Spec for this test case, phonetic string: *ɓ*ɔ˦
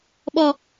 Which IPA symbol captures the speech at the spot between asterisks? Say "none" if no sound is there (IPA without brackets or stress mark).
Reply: ɓ